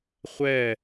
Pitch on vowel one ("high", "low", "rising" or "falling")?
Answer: falling